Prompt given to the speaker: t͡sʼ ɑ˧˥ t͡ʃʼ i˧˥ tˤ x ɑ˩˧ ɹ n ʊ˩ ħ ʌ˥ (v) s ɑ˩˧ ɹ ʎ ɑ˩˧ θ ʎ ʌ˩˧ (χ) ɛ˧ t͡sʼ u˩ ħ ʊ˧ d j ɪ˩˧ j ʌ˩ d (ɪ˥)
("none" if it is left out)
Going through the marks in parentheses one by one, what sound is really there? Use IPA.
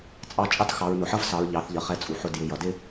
v, χ, ɪ˥

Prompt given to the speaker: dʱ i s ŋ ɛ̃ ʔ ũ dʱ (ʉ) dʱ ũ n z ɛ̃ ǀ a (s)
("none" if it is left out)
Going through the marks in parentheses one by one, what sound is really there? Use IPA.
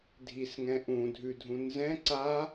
ʉ, none

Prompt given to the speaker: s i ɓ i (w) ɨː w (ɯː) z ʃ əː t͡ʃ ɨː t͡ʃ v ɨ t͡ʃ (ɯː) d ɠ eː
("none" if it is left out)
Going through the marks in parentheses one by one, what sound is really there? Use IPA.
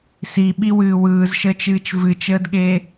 w, ɯː, əː

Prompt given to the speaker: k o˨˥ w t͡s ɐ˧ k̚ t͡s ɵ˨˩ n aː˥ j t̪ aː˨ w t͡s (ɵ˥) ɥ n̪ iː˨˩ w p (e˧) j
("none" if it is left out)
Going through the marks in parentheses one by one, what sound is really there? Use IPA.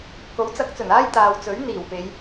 ɵ˨˥, e˨˧

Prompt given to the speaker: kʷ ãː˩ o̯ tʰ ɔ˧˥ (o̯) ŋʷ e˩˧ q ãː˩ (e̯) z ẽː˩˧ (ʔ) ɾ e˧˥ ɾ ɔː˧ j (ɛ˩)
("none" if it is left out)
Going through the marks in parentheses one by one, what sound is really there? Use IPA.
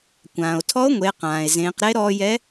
o̯, e̯, q, ɛ˧˥

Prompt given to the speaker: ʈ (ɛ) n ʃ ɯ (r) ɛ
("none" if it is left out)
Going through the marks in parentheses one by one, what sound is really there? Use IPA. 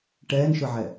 ɛː, ʕ

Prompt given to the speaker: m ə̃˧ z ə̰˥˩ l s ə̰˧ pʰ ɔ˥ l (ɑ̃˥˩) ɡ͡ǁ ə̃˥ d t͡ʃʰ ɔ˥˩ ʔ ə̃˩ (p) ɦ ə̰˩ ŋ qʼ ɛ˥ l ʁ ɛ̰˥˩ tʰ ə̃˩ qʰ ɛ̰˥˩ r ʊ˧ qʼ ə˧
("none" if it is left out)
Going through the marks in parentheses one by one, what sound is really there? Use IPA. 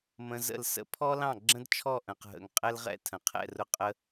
ɑ̃˥˩, q

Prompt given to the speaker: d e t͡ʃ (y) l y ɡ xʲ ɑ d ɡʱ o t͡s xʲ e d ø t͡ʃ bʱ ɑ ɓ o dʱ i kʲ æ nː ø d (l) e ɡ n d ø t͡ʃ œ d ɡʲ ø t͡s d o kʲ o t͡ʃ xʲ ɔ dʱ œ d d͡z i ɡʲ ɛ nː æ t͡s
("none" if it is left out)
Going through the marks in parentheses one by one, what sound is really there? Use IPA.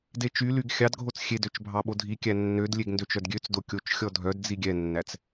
y, lʲ

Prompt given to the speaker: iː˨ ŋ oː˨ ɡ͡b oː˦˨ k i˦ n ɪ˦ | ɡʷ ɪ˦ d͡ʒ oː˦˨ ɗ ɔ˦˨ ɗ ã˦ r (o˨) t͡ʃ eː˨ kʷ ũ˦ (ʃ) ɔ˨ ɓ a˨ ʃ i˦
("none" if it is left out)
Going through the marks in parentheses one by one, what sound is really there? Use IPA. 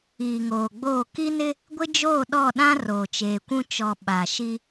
oː˨, t͡ʃ

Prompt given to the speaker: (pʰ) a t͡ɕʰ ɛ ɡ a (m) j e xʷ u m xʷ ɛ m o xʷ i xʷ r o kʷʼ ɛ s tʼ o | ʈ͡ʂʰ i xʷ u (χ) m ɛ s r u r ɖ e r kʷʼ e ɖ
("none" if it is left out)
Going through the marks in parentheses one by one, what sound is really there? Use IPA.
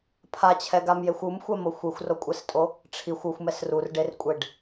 pʰ, m, xʷ

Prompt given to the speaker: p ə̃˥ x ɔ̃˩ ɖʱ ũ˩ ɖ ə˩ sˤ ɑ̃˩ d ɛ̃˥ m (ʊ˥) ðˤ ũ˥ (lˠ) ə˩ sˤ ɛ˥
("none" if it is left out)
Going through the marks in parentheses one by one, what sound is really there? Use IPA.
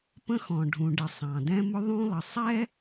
ʊ˥, lˠ

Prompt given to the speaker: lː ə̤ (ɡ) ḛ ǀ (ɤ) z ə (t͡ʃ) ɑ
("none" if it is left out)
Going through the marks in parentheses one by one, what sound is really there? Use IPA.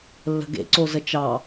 ɡ, o, t͡ʃ

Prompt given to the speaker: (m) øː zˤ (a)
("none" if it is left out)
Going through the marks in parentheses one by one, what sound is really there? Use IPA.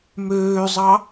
m, ɑ

